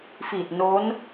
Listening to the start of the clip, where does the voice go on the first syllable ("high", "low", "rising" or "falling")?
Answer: low